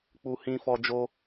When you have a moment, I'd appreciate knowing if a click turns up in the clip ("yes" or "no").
no